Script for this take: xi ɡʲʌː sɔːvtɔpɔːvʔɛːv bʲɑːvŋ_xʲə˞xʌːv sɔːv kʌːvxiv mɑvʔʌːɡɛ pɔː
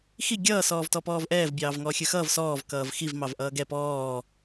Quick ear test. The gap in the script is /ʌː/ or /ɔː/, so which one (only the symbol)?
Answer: ɔː